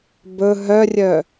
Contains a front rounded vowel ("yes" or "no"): yes